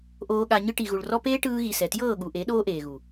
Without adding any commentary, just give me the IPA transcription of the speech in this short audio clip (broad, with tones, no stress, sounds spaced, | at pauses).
ʔ oː˧ ɠ a˧ ɲ ɯ˧ ʈ i˨ ɣ u˨ ɭ r ɔ˦ p eː˦ ʈ ɯː˧ ɣ i˨ s ɛ˨ t j ɤː˦˨ ɠ u˨ ʔ e˨˦ ɗ oː˦ ʔ eː˨ ɣ u˨